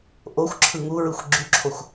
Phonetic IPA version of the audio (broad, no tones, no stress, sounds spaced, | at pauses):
ʔ o xʷ ǁʰ ɯ ŋ u ɹ ɯ xʷ ɡ͡ǁ y ǁʰ o xʷ